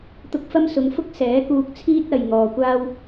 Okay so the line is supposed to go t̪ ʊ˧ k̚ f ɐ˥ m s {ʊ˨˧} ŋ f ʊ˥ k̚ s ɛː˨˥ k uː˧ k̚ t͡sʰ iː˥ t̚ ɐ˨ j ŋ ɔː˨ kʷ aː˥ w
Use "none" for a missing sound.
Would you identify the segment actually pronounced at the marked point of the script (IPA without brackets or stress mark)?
ʊ˨˧